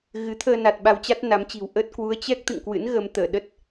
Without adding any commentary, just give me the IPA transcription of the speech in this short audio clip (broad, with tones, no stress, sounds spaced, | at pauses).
ɣ ɨ˨˦ t̪ʰ əː˧ n a˨˩ t̚ ɓ a˧ w t͡ɕ a˦˥ t̚ n a˨˦ m t͡ɕ i̤˨˩ w ʔ ə˦˥ t̚ k w u˨˦ ə̯ t͡ɕ ɛ˦˥ k̚ t̪ ɨ̰˧˨ ŋ k w ɨ̰˧˥ n ɣ ə˧ m t̪ əː˧˩ ɗ ə˦˥ t̚